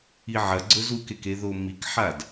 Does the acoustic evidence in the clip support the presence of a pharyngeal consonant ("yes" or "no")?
yes